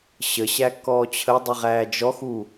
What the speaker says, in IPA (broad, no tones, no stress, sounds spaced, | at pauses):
ɕ ə ɕ æ kː ɔː t͡ɕʰ ə dˤ i ʁ æː d͡ʒ ɔ x u